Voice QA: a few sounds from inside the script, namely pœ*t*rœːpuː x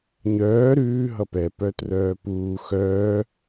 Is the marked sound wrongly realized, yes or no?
no